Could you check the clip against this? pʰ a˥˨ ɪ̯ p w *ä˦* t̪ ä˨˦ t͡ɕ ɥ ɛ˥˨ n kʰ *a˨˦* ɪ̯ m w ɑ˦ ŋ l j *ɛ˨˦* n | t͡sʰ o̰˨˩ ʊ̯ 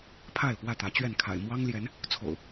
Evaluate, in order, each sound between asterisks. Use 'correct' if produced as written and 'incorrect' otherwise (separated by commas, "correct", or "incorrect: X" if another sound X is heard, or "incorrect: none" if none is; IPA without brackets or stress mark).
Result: incorrect: ä˥˨, incorrect: a̰˨˩, correct